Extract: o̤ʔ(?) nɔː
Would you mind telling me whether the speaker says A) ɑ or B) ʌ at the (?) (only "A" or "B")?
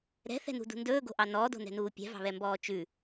A